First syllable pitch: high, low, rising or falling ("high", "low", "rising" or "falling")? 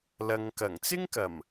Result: low